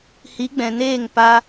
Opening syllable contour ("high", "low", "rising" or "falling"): rising